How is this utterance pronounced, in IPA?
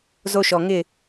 zo˦ʃɔ˨ ŋɪ˦˨

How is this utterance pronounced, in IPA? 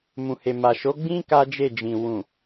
mũ˨he˨ma˨ ʃo˨˦ɡ͡bĩ˦ ka˦ d͡ʒe˦˨d͡ʒĩ˨ wũ˨

